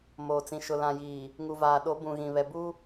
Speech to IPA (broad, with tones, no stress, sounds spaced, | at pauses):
m oː˨ t͡s ĩ˨ ʃ ʊ˨ l ã˨ j iː˨ | ŋ u˨ v aː˨ ɗ o˨˦ b ũ˨ ɣ ĩ˨ β ɛ˨ b u˦